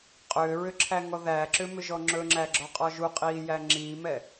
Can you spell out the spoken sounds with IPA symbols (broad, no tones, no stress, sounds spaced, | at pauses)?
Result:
qʼ ʏː ɹ ʏ ǁʰ æ ŋ ɔ ð æː ǁ ʏ m ʏ ʒ ɔ ŋ͡ǁ ɵ ŋ͡ǁ æ ɡ͡ǁ ɔ qʼ ɔ ʒ u qʼ iː j æ ŋ͡ǁ iː m ɛ